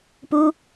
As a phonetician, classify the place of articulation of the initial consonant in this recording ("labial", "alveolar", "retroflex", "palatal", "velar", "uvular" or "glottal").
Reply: labial